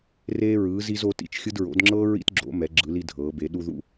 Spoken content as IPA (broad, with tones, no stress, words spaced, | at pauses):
reː˧ɹɯː˩˧z i˧zo˩˧tḭ˩˧t͡ʃxʲɯ˧d ɹo̰˩˧dŋ͡ǁɤː˧ ɹḭ˧tɡ͡ǁo̰˩˧ mɛ˩˧ɡ͡ǁɯ˩˧li˧ dʱɤː˩˧be˩˧ ɗu˧ðṵ˧